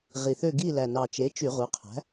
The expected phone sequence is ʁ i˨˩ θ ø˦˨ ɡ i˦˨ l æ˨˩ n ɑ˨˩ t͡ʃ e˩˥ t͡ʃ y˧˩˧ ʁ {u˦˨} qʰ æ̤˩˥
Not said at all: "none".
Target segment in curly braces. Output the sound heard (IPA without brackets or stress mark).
u˩˥